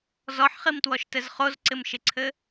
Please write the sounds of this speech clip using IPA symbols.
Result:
z ɔ ħ χ i m t w ɔ ʃ t ɘ z χ o z ǀ ɪ m ʃ ɪ ǀʰ ɘ

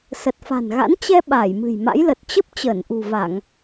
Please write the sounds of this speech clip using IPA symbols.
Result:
s ə˨˩ t̚ f a̤˨˩ n ɣ a̰˧˥ n t͡ɕ ɛ˧ ɓ aː˧˩ j m ɨ̤˨˩ j m a̰˧˥ j l ə˨˩ t̚ t͡ɕ ə˦˥ p̚ t͡ɕ əː˧˩ n ʔ ṳ˨˩ v a˧˩˨ ŋ

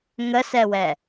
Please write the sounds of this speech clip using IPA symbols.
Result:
ŋ ə s ɛ w ɛ

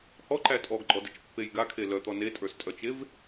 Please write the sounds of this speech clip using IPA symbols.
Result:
h ɔ ǃ æ tʼ ɔ ɡ ɡ͡ǃ ɔ d ɪ t͡ʃ pː e j ɡ a kʰ e l œ t̪ ɔ n e tʼ ə˞ s tʼ œ t͡ʃ e v

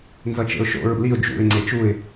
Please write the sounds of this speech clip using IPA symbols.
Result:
n z ʌ t͡ʃ ḛ ʊ̯ ʃ o̰ ɹ ṵ l i ʊ̯ d͡ʒ ṵ ɪ̯ ŋ͡ǀ e t͡ʃ u ɪ̯

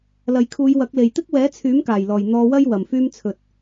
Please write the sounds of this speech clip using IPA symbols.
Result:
l ɐ˨ j kʰ uː˨˧ j w ɐ˨˥ k̚ l e˨ j t̪ ɪ˥ k̚ w ɛː˨˥ t͡sʰ yː˨˥ m k aː˨˩ j l ɔː˨˩ j n̪ ɔː˧ w ɐ˥ j w ɐ˨ m f yː˥ m t͡sʰ ɵ˧ t̚

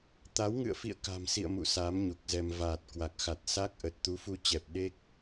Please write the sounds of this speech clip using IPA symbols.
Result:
t̪ a˨˦ w ŋ ɨ̰˧˨ ə̯ f ḭ˧˨ ə̯ k a̤˨˩ m s ḭ˧˨ ə̯ m ṵ˧˨ s a˨˦ m ɲ u˨˩ k̚ z ɛ˧ m v aː˨˩ t̚ k w a˨˩ k̚ x a˨˩ t̚ s a˦˥ k̚ ʔ ə˨˩ t̚ t̪ u˨˦ f u˧ t͡ɕ ɛ˨˩ p̚ ɗ e˦˥ k̚

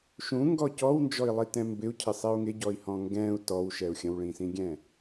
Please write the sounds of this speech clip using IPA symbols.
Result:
ʃ ũ ŋ ɡ ɔ c ɔ w n d͡ʒ ɔ i̯ lˠ i t ɛ̃ m b ɪ u̯ cʰ ɪ sˤ ɛ u̯ ŋ ɪ ɟ ɔ i̯ h ɔ̃ ŋ ɡ ɛ̃ u̯ t ɔ w ʃ ɛ u̯ xʲ ə̃ w ɭ ĩ s ĩ ɡʲ ɛ̃

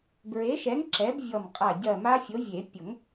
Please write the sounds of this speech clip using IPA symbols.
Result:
b ɹ e˨˥ ʃ ɛ˨˥ ŋ ǁ ɛ˨˥ b vʲ ɔ˧˩ m qʼ a˧˩ ɟ ɜ˧˩ m a˦˥ fʲ o˨˥ vʲ e˨˩˦ pʲ o˨˩˦ ŋ

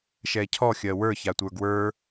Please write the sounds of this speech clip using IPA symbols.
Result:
ʃ ɛ cʰ ɔ xʲ ɜ w ə˞ ç a tʷ ə˞ ɡ w ə˞

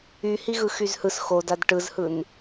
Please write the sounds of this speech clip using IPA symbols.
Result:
y h i ɣ ɯ x y z h ɯ s x o d a d ʈ ɯ z h ɯ n

